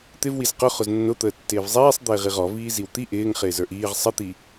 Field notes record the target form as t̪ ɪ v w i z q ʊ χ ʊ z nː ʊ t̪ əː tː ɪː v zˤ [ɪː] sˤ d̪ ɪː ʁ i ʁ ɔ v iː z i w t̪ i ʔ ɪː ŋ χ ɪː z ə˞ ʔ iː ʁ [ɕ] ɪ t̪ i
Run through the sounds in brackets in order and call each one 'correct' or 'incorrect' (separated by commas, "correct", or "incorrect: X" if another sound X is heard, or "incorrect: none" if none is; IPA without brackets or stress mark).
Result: incorrect: iː, incorrect: sˤ